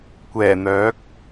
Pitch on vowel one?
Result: low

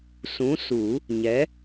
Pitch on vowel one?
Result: rising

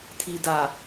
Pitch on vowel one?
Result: low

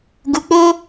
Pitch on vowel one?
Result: low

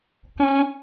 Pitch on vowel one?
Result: high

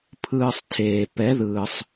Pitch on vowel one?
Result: low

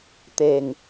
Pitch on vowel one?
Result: low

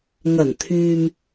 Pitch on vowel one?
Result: low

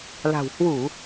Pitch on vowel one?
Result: low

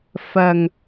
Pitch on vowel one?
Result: low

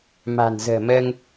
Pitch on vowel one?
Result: low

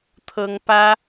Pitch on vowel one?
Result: high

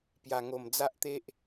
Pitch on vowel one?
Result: low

